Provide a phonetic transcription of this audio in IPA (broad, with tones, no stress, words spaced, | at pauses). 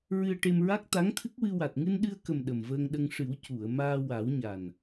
ɹɨ˧ə̯ʈe˧mɹa˦˥k̚ t̪a˧˥ŋt̪ʰɨ˦˥k̚wɨ˧ wa˨˩t̚ŋɨ˧nɗɨ˧ə̯kə˨˩m ɗə˨˩mvəː˧ŋɗə˧ŋ ʂɨ˨˩˦w cu˨˩˨ə̯maː˧ wa˨˩˦wɲa˨˩n